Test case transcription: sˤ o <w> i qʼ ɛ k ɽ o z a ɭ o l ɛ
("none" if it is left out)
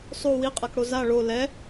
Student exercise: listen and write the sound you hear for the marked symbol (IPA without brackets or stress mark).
w